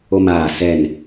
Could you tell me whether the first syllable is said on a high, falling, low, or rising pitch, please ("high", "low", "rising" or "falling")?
high